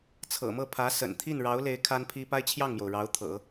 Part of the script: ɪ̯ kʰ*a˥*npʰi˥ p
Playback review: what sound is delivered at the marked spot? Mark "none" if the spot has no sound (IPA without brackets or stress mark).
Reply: a˥